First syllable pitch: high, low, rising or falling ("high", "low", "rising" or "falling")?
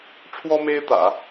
high